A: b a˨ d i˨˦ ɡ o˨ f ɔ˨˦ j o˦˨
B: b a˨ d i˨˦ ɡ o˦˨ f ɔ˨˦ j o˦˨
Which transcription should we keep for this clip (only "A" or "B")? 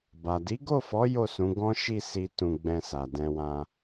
B